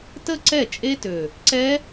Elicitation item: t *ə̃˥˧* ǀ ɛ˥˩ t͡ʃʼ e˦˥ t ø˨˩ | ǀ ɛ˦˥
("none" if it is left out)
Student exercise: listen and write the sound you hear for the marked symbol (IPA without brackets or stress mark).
ə˥˧